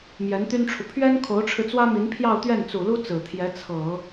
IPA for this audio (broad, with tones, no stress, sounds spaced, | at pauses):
m j ɛ˧˥ n t̪ y˥ n ʈ͡ʂʰ u˨ pʰ ɥ ɛ˥ n kʰ o˧˥ ʊ̯ ʈ͡ʂʰ ɻ̩˧ t͡s w ä˥ m i˧˥ n pʰ j ɑ˥˧ ʊ̯ t̪ ɥ ɛ˥˩ n t͡s u˨˩ l u˥ t͡s ɹ̩˨˩ t̪ʰ j ɛ˧˥ t͡sʰ ɤ˨˩˦